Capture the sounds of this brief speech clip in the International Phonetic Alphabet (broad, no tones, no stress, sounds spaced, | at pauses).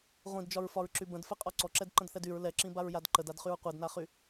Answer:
ʁʷ ĩ d d͡ʒ ɒ ɹ f ɒ ɹ ǁ y b ə̃ d f ɛ qʼ ɒ ǀ ɔ ǁ ɛ d ǃ ə̃ d θ ɛ d y ɹ l ɛ ǁ ĩ b a ɹ j a d ǃ ə d a d χ y ɹ qʷ ɛ d n a χ y